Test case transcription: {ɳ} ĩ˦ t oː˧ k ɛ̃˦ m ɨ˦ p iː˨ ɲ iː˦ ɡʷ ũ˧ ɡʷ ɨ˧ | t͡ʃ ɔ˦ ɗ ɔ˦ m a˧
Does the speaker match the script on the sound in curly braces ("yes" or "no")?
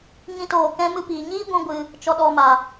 no